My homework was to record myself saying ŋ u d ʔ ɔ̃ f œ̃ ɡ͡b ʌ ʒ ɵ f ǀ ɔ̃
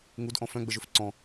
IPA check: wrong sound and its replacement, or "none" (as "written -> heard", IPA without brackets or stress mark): ʌ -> ə